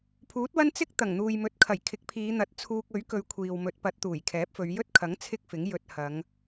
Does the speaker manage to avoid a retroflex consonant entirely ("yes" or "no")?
yes